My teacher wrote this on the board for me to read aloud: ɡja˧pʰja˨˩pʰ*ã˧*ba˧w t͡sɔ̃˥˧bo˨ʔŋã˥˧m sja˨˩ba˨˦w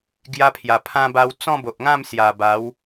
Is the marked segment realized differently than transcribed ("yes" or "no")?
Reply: no